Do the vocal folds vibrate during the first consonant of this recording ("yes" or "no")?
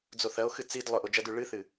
yes